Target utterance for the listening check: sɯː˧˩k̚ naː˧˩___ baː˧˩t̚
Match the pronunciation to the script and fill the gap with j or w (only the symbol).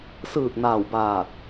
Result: w